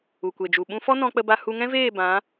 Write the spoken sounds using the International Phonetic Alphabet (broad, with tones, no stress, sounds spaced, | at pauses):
u˨ kʷ e˨ d͡ʒ u˨ ɓ ũ˦ f ɔ˦ n ɔ̃˧ k͡p ə˧ b a˧ h u˧ ŋ ɛ̃˦ v eː˦˨ b ã˨˦